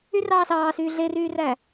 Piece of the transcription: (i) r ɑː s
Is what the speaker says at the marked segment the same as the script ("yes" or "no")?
no